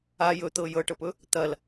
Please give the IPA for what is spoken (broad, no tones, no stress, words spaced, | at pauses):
a jɵt̪ɤ jɤʈɤpɵ | t̪ɐl